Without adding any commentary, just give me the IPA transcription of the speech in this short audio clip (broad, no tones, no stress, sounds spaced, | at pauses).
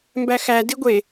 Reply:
m b æ x æ d i ɡʷ e